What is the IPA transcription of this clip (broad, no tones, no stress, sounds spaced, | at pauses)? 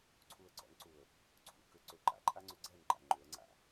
ǀʰ u ə̯ ɡ͡ǀ ɔ̰ n ǀ u ə̯ | ǀʰ ṵ k ʏ ǀ ʏ ǃ a̰ ǃʼ a ŋ͡ǀ ʏ ɡ͡ǀ ɛ n ǃ a̰ ŋ͡ǃ ʏ ə̯ ŋ͡ǀ a̰